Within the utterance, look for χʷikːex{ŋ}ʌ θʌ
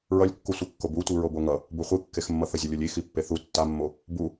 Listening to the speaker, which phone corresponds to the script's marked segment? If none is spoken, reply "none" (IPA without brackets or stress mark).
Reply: mː